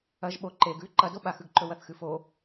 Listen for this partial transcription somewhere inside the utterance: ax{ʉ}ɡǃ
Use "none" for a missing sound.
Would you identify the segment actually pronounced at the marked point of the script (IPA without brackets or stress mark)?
ʉ